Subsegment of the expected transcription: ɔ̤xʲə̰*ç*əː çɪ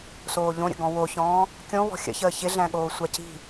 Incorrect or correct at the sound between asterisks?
correct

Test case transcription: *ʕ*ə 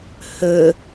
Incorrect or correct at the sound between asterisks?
incorrect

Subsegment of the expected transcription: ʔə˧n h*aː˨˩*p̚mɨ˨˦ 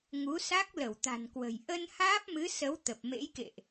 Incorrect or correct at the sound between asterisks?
incorrect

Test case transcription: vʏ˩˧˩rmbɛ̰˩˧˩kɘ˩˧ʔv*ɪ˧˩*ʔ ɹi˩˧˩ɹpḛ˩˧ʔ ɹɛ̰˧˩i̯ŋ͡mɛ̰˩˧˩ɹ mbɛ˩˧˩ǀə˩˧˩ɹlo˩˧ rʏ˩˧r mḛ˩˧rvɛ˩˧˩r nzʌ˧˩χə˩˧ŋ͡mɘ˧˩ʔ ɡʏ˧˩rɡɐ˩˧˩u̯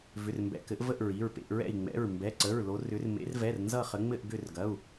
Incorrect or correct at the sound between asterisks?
incorrect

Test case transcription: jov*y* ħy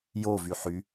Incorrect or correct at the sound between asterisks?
correct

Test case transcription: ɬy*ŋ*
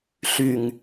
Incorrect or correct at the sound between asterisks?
correct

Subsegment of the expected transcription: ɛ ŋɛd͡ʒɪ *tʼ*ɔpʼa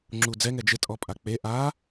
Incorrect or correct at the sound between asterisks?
correct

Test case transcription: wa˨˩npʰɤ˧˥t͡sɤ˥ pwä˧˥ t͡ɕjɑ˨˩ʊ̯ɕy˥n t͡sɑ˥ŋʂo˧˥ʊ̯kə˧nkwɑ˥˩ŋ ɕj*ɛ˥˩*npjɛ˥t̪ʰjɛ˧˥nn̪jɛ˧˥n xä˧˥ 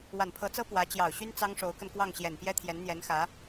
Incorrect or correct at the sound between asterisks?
incorrect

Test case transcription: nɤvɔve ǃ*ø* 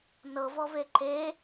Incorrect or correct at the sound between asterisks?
incorrect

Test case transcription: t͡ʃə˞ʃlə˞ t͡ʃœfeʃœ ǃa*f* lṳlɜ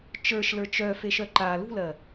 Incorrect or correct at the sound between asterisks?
incorrect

